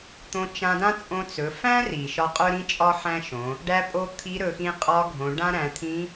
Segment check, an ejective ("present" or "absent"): present